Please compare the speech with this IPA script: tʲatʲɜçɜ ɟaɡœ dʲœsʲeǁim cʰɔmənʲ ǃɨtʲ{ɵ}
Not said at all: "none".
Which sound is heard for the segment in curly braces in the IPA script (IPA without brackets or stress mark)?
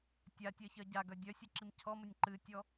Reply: ɔ